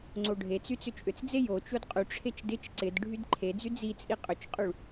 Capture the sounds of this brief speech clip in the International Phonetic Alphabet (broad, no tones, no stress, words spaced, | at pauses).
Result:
ŋ͡ǀoɖʱet͡sy t͡sʏt͡ʃʼʏt͡sd͡ze jo t͡ʃodqʼyʈ͡ʂʰet͡ʃ dɪt͡ʃ ǀɪd ɖʱydǃʰed͡zy d͡zit͡sʼi qʼʏt͡ʃqʼyɭ